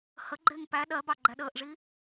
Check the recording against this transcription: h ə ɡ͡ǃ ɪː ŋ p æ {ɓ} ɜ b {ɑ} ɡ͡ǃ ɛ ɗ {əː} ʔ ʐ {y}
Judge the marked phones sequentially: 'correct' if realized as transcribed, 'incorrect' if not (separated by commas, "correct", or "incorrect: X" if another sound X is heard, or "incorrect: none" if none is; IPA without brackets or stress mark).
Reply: incorrect: ɗ, correct, correct, incorrect: i